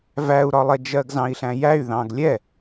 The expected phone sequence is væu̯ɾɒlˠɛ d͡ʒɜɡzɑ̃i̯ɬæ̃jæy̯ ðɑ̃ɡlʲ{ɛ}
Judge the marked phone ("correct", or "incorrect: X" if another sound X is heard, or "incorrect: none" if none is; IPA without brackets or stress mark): correct